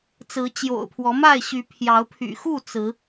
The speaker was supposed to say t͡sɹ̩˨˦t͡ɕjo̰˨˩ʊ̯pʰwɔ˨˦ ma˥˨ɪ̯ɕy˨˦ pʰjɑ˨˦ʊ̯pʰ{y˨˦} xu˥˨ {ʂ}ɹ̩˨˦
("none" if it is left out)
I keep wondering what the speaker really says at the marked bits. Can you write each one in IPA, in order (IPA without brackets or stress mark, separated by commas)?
y̰˨˩, t͡s